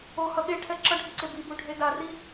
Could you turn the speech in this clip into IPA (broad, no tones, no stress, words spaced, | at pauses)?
ohʌ ɠeʈʰɛ ǁʌɖʱiǀe bibuɖʱe dari